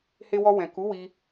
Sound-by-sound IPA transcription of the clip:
h e˧ w ɔ˧ w ɛ̃˨ k u˨˦ w i˧

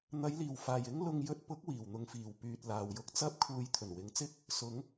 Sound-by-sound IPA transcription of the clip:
n̪ ɐ˨˧ j l iː˨˩ w f aː˨˩ j ɪ˥ ŋ l ʊ˧ ŋ j ɵ˧ t̚ p ʊ˨˥ k̚ w iː˨˩ w n̪ ʊ˧ ŋ f iː˨˩ w p yː˧ t̚ l aː˨ w j ʊ˧ k̚ t͡s ɐ˥ p̚ kʰ uː˧ j t̪ʰ ɵ˨˩ n w ɪ˨˧ ŋ t͡s ɪ˥ k̚ | s ʊ˨˧ ŋ

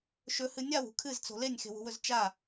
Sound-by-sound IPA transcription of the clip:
ʃ ɵ h ɨ nʲ a w ṳ kʰ ɨ z t͡s o̤ l e nʲ x e̤ w ṳ w ɵ z t͡ʃ a

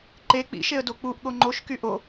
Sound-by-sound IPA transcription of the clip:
ǃ e k͡p ḭ ʃ e ə̯ d o k͡p u ʔ ɠ o ŋ͡ǃ o ʃ k y ʔ o

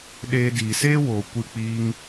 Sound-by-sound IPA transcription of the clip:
ɗ eː˧ d iː˨ s eː˦ w oː˨ kʷ ɨ˦˨ k͡p iː˦ ŋ

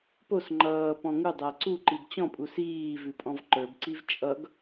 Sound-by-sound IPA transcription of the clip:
p o s ŋ͡ǃ ʌː p ɔ̃ ŋ u dˤ æ ǀ u ǃ i b t͡ɕ ɔ̃ pʼ u s iː v ʉ pʼ ɔ̃ v ǃ ə˞ b ǀ i v t͡ʃʼ ʌ ɡ

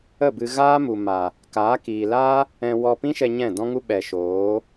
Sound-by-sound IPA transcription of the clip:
ə˦˨ b ɨ˧ ɣ aː˦ m u˨ m a˨ | k aː˨˦ k iː˨ l aː˦ | ɛ̃˧ w ɔ˧ p ĩ˦ ʃ ɛ˧ ɲ ɛ̃˦˨ d ɔ̃˦ ŋ u˦ ɓ ɛ˨ ʃ oː˨˦

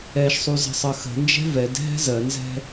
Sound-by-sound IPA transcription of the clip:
ɛ ʃ sˤ u z ə̤ sˤ ɜ x ə̤ n d͡ʒ ɛ̤ v ɛ d ɦ ɛ̤ z ɜ n z ɛ̤

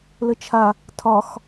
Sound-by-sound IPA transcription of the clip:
l ə t͡ʃʰ a | tʰ ɒ x

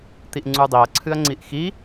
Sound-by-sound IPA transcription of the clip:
t̪ i ʔ ŋ͡ǀ u dˤ i ɐ̯ ǀʰ ɨ ɐ̯ ŋ͡ǀ i ʔ x i

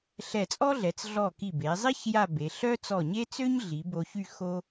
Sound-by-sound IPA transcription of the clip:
ɬ ɛ˧˩ t͡sʼ ɔ˥ ɮ ɛ˩˧ t͡s ɮ ɔ˧˩ k i˧˩ b e˩˧ zˤ i˥ ç j a˥˧ b e˩˧ ɬ œ˥ t͡s ɔ˧˩ ɲ e˥ t͡s ø˥ ɲ ɮ i˩˧ b o˧ ç y˥˧ x o˥

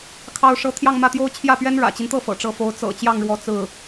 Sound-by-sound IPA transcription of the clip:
kʰ ɑ˥˩ ʊ̯ ʂ ɤ˥ t̪ʰ j ɑ˥˧ ŋ m ä˥˩ t̪ j o˥ ʊ̯ t͡ɕʰ j ä˥˩ p ɥ ɛ˥ n ɻ ä̰˨˩ t͡ɕ i˦ n t̪ ɤ˥˩ f ɤ̰˨˩ ʈ͡ʂ ɤ˧˥ f o˧˥ ʊ̯ t͡s ɤ̰˨˩ t͡ɕ j ɑ˥˩ ŋ ɻ w ɔ˧˥ t͡s ɹ̩˥˩

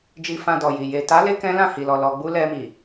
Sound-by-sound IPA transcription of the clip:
d͡ʒ i˧ f ã˧ d ɔ˨ j i˨ j e˨ t a˨˦ l e˧ k ɛ̃˦ l ã˦˨ h i˨ l ɔ˨ l ɔ˨ ɡ͡b u˧ l ɛ˧ m i˨

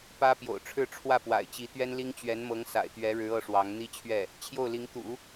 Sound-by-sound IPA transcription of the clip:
p ä˥ p j o̰˨˩ ʊ̯ ʈ͡ʂʰ ɻ̩˥˧ ʈ͡ʂʰ w ä˥˩ p w a̰˨˩ ɪ̯ t͡ɕ i˧˥ t̪ ɥ ɛ˥ n l i˥ ŋ t͡ɕ ɥ ɛ˧˥ n m ɤ˧˥ ŋ s a̰˨˩ ɪ̯ t̪ ɥ ɛ˧˥ ɻ ɻ̩˧˥ ɤ˥ ʂ w ɑ˧˥ ŋ n̪ i˥ t͡ɕʰ ɥ ɛ˥˩ | t͡ɕʰ j o˥˩ ʊ̯ l i˧˥ ŋ t̪ ṵ˨˩˦

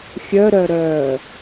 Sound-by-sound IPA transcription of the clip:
xʲ œ ɾ œ ɾ œː

